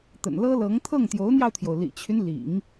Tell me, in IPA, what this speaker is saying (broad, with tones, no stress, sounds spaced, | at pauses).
t̪ ə̰˨˩ n l ɤ˥ l ɤ˧˥ ŋ t̪ʰ ɤ˥˩ ŋ t̪ j o˧˥ ʊ̯ n̪ j ɑ˧ ʊ̯ t̪ʰ j o˩ ʊ̯ l ḭ˨˩ t͡ɕʰ y˦ n l ḭ˨˩˦ ŋ